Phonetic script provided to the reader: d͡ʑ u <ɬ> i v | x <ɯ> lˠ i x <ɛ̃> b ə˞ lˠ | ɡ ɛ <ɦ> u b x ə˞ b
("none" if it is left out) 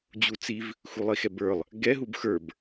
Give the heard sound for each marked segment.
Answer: t͡s, u, ɛ, ɦ

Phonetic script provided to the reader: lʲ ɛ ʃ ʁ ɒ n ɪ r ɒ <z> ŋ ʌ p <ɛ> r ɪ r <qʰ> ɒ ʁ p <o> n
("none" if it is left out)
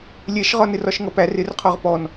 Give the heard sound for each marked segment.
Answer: ʃ, æ, qʰ, ɔ

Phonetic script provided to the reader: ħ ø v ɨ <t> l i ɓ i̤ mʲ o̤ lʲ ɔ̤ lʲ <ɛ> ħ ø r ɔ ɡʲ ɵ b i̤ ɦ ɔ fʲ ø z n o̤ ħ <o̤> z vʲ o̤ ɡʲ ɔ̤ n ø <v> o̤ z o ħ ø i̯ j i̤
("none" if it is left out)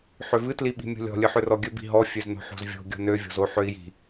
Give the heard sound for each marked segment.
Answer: t, ɨ, o̤, vʲ

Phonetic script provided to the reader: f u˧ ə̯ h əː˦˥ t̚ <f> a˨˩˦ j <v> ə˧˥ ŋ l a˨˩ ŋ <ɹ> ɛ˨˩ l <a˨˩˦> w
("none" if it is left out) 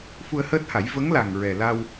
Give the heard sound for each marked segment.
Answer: h, v, ɹ, a˧

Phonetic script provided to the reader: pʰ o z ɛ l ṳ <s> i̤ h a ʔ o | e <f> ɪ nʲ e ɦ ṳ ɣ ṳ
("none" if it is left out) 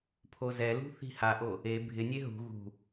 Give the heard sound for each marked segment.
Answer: θ, bʱ

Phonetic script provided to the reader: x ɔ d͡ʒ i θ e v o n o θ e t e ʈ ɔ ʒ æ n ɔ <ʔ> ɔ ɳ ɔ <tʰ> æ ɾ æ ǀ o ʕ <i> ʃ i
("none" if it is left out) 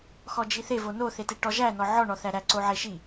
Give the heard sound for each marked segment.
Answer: ʕ, θ, e

